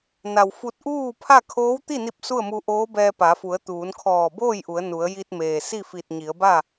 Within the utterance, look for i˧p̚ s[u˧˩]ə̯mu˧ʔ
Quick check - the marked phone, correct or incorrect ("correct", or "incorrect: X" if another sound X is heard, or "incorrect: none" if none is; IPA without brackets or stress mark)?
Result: incorrect: u˥˨